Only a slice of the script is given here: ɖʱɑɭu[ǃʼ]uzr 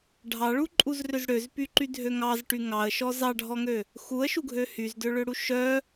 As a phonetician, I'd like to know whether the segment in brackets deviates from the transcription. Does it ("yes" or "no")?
no